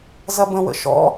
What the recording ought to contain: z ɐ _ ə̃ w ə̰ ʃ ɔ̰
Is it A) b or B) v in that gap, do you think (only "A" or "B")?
A